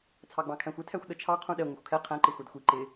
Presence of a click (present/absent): present